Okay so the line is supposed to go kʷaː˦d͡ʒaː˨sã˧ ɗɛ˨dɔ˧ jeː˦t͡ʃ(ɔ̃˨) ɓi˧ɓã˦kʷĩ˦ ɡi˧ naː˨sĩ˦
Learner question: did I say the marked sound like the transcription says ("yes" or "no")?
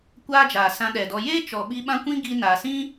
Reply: no